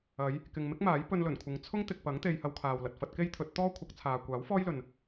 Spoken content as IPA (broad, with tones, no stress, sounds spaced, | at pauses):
ɐ˨˧ j | k ɪ˨ ŋ m ɪ˥ k̚ m aː˨˥ j p ɵ˧ n l ɵ˨˩ n kʷʰ ɪ˨˧ ŋ t͡sʰ ʊ˥ ŋ t̪ ɪ˨ k̚ p ɐ˨˥ ŋ t̪ e˧ j h ɐ˧ w kʰ aː˨ w l ɐ˨ t̚ f ɐ˧ t̚ k e˥ j t̪ʰ ɵ˨˥ t̚ t̪ ɔː˥ kʷʰ ɐ˨˥ k̚ t͡sʰ aː˨ kʷ aː˨˥ w f ɔː˥ j l ɵ˨ n